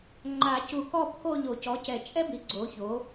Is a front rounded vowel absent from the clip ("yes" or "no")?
yes